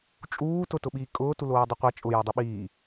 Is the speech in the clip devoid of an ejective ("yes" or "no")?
no